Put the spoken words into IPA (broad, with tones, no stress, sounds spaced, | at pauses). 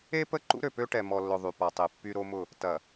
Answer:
e˦ p ə˦ ǃ ṵ˦ ɾ ø˨ p ø˦ ʈ ɛ˨ m ɔ˨ lː ʊ˨ ðˤ y˨ p a˨ tˤ e˨ pː y˦ ɾ o˦ m ʊ˦˨ | t ɐ˨